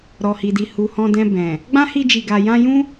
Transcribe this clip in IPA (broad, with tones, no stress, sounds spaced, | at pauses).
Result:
ɾ ɔ˨ h i˨ d i˨ h u˨ h ɔ̃˧ d ɛ̃˧ b ɛ̃˨ | ɡ͡b ã˦ h i˧ d͡ʒ i˨ ɡ a˨ j ã˧ j ũ˦